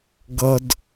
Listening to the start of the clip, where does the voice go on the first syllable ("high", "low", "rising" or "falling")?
high